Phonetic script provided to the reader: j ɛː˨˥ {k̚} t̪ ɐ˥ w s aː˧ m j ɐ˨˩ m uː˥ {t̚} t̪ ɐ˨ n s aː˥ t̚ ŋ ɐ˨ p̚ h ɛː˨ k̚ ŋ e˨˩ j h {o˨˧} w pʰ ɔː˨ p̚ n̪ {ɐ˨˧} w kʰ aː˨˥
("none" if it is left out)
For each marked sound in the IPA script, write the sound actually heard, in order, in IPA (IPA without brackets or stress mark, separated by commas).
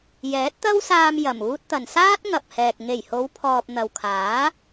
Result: t̚, t̚, o˨˧, ɐ˨